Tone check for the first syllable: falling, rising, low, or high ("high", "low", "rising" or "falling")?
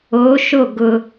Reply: rising